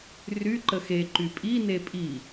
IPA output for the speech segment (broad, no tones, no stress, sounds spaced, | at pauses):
r y ǃ ə x e ǃ y pʼ i n e pʼ i